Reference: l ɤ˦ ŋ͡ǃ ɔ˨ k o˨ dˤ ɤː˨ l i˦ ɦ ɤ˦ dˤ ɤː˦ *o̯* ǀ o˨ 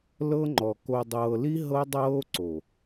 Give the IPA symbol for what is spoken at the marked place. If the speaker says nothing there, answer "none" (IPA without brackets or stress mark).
o̯